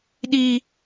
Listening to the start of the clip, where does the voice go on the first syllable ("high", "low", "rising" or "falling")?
high